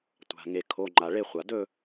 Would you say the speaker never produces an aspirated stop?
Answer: no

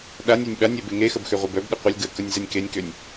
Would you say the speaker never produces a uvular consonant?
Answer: no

